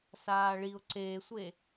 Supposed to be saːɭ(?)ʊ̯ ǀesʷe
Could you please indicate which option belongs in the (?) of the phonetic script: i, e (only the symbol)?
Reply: i